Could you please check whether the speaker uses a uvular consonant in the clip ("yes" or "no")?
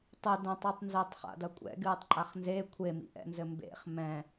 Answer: yes